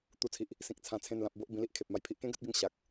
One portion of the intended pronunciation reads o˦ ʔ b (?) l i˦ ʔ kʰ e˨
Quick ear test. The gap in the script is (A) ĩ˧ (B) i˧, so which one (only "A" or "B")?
A